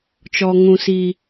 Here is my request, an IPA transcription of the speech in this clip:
t͡ʃ ɔ˦ ŋ ũ˦ s i˦

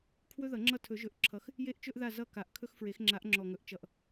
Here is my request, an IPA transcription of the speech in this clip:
kʰ w ɵ˦ ð ʌ˨˩˦ ŋ͡ǁ ʌ˦˨ tʰ ɵ˨˩˦ ʒ ɵ˨˦ ʔ ǁʰ ʌ˨˦ x | j e˦ ʔ t͡ʃ ɵ˦ ʔ ð a˦˨ z ʌ˦˨ k a˨˩˦ ʔ kʰ ɵ˦ x f ɹ e˨˩˦ x ŋ͡ǁ a˨˦ ʔ ŋ͡ǁ ɔ˨˩ ŋ ɵ˨˩˦ ʔ t͡ʃ ʌ˨˩ ʔ

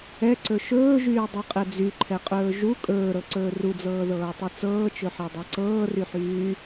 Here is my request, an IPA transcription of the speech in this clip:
ɛ ǀ ɵ ʃ ɵː ʒ yː dˤ ɤ qʼ ɛ d͡z y ǃʰ ɛ qʼ ɵː ʒ u kʼ ɵː ɾ ɤ ǀ ɵː r u d͡z ɤː ð ɤː tˤ y t͡s ɤː t͡ʃ ɵ ħ e dˤ ɤ ǀ ɤː r y ħ yː

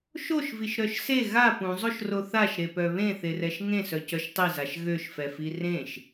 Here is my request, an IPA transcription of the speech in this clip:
ʃ o ʃ v i ʃ ɾ œ ʃ s e ɣ a p ũ zˤ o ʃ r o θ a ʃ ɾ e p œ β ẽ θ e r ɛ ʃ ŋ ẽ s œ c œ ʃ tˤ i z a ʃ ɣ ø ʃ f ɛ f i r ẽ ʃ

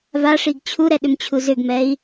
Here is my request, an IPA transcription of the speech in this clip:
v a ʂ i ɡ t͡ɕʰ u ɾ ɛ ɗ ʏ m t͡ɕʰ u z ʏ ɡ m ɛ i̯

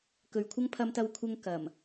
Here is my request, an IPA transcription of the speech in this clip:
k ɵ˨ ɥ kʷʰ ɐ˥ ŋ pʰ ɐ˧ m t̪ ɐ˧ w kʷʰ ɐ˧ ŋ k ɐ˨˩ m

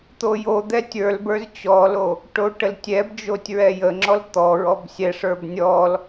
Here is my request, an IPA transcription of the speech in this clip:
t̪ o j o d̪ ɛ tʲ ə˞ l b ə˞ z t͡ɕ ɔ l o | ʈ o ʈ ə l tʲ ɛ b d͡ʒ o tʲ ɹ ɛ j ə ŋ͡ǁ ɔ l t̪ ɔ ɹ ɔ b sʲ ɛ ʂ ə˞ b nʲ ɔ l

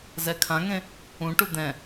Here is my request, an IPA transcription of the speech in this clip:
z ɛ kʰ ã ŋ ẽ | ũ ʈ u d̪ ɛ̃

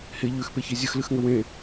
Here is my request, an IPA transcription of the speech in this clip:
h e ʎ ʉ x p e ç e zʲ ə x l ɨ x ŋ ə w ẽ

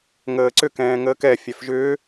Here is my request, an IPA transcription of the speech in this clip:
ŋ əː ǀ ʏ k ɛ̃ː ŋ əː k ɛ fʲ æ f ʒ ʏː

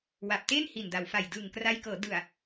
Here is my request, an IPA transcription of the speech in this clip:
w a˨˩ p̚ t e˥˩ n h i˨˩ n d a˩˦ w f a˨˩ j d ɯː˨˩ ŋ k r a˧ j k ɤː˩˦ d ɯ˨˩ a̯

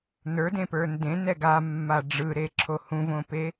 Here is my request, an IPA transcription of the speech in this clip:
n ə˞ d ẽ p ə˞ n d ẽ n ɛ ɡ a mː a ɖ͡ʐ ɯ ɾ e ǁʰ o h ũ v õ p e

